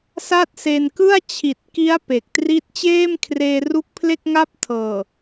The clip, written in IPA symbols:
s a˥˩ t̚ s e˧ n k ɯ˥˩ a̯ t͡ɕʰ i˨˩ t̚ k i˦˥ a̯ p e˨˩ k̚ t r i˥˩ t̚ t͡ɕ eː˥˩ m kʰ r eː˧ r u˦˥ k̚ pʰ l e˥˩ k̚ ŋ a˥˩ p̚ tʰ ɤː˨˩

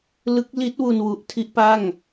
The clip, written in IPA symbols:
l ɯ˦˥ k̚ l i˦˥ t̚ w u˧ n w u˨˩ ʔ tʰ i˥˩ ʔ p a˥˩ ŋ

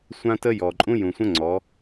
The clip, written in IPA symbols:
sʷ ã˦ t ə˦ j ɔ˨ ǃʼ ũ˦ j ũ˨ sʷ ə̃˦ ŋ͡ǀ ɔ˨˦

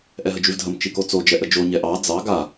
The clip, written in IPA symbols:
ʔ ɛ ɦ ə d͡ʒ ʉ v dʱ ə m t͡ʃ i k o t͡s o d͡ʒ ɛ ʔ ə d͡ʒ o ɲ ɛ ʔ ɑ d͡z ɑ ɡ a

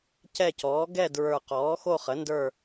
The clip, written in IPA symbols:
c ɛ˦˨ c ɔː˩˥ ɡ ɛ˦˨ d ɹ ə˞˨˩ q ɔː˩˥ x o˦˨ χ ə˩˥ n d ə˞˦˨

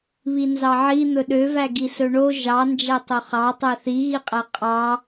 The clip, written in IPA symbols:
β i n z ɑ ʕ i n̪ ɵ ɗ ø v æ ɡ i s ɵ ɳ o ʒ ɑ n d͡ʒ æ tˤ o χ ɑ tˤ æ θ i ɣ i qʼ æ qʼ ɑ

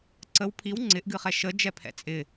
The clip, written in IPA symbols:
ǀ ə w pʰ i w ŋ͡ǀ ɪ ʔ ɡ ɨ χ ɛ ʃ ə d͡ʒ ɛ pʰ ɛ̰ t͡sʼ ɪ

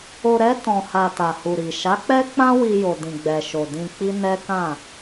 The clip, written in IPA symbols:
o˨ ɾ ɛ˧ t ɔ̃˨ h a˨ t a˨ h u˨ ɾ i˨ ʃ a˨˦ k͡p ɛ˦ k͡p ã˦ w i˧ j o˨ d ĩ˨ ɡ͡b ɛ˨ ʃ o˨ d ĩ˧ k͡p i˦ n ɛ˦ k ã˦˨

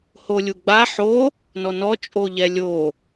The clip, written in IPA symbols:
h o lʲ u ɡ͡b a ħ o | n ɔ n ɔ t͡ʃʼ o ʎ ɛ lʲ o

